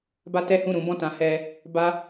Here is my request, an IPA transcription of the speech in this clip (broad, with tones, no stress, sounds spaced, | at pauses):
b a˦ t ɛ˦ h ũ˦˨ ɾ ũ˨˦ b ɔ̃˦˨ t ã˨˦ h ɛ˧ | b a˧